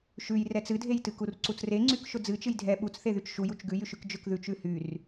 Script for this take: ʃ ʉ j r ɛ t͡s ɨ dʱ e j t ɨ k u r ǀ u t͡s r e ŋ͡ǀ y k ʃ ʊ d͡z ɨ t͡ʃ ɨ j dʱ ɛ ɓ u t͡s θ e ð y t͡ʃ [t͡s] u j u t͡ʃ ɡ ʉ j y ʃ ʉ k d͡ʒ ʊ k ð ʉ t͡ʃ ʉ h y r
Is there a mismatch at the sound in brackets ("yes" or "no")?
yes